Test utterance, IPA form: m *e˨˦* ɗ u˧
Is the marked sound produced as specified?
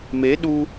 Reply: yes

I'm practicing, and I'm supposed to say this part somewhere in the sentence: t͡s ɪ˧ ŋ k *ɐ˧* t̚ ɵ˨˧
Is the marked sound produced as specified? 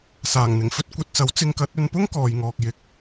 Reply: no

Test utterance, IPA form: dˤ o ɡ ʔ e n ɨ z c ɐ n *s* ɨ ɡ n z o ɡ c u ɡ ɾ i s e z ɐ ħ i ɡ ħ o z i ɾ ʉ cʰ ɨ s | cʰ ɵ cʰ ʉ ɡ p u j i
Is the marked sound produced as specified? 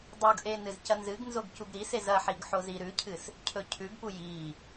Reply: no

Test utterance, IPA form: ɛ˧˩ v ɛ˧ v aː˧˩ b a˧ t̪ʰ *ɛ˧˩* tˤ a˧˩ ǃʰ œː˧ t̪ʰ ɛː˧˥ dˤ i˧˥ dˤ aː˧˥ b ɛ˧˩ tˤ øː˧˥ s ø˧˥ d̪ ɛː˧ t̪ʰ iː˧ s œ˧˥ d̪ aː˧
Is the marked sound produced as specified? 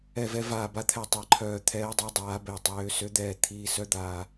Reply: yes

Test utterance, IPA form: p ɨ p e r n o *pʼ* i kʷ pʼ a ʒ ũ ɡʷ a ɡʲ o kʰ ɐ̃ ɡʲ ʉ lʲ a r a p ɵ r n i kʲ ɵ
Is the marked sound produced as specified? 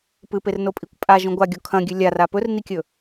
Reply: yes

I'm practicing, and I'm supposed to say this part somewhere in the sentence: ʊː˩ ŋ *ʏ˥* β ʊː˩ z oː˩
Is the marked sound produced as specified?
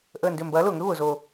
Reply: yes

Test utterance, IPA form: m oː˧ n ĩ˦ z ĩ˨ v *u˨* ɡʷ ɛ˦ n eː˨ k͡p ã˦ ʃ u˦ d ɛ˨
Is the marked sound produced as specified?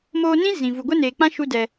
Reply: yes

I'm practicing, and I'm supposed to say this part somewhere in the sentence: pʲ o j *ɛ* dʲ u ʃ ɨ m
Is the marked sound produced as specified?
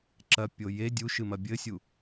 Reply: no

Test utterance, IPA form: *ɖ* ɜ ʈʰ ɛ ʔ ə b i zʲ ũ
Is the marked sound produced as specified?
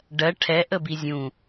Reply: yes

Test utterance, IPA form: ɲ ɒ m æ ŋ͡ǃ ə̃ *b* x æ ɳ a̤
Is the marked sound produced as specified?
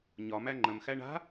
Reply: no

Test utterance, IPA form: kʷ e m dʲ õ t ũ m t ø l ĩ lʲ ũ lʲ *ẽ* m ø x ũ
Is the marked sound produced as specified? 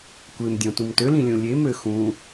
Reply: no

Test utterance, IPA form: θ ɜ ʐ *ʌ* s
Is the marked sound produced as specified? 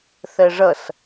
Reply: yes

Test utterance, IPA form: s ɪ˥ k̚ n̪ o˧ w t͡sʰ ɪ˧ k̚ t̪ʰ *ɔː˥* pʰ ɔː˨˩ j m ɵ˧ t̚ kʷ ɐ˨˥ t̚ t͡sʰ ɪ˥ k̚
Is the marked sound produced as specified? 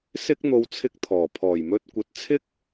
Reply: no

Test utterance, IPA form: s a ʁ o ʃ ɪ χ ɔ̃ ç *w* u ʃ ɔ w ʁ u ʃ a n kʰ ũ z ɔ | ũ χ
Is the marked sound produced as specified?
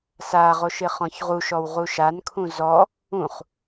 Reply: no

